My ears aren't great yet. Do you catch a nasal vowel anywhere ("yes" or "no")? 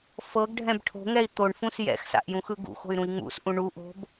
yes